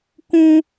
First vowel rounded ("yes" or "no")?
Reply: yes